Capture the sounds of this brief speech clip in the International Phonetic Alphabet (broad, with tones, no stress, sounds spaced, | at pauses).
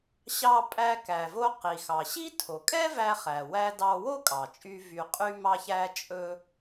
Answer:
ɕ ɑ˧ pʼ æ˧ k æ˩ v o˧ q i˩ x ɑ˩ ɕ i˥ tʰ o˩ kʼ ɛ˥ v æ˧ χ æ˩ w æ˧ d ɑ˧ w o˥ kʼ ɑ˩ t͡ʃʼ y˧ v y˧ qʼ y˥ m ɑ˥ ç æ˥ t͡ʃʼ ɵ˥